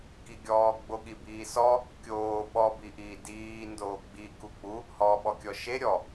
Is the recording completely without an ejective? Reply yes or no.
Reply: yes